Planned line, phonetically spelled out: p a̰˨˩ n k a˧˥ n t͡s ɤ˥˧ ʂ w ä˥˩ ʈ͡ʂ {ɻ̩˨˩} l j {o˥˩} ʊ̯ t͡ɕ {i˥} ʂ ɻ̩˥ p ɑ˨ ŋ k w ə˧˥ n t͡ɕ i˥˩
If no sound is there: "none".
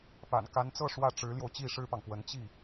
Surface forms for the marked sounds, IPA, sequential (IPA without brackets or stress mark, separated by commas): ɻ̩˧˥, o˧, i˥˩